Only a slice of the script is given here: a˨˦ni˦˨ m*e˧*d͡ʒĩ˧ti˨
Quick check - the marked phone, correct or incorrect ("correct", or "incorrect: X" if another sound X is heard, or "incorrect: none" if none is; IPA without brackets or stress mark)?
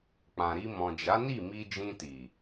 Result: incorrect: i˧